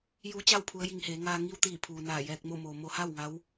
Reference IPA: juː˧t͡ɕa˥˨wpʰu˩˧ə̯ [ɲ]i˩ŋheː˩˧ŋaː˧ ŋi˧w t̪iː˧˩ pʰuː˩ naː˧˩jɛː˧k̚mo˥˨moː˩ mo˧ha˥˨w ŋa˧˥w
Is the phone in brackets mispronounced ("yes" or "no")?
yes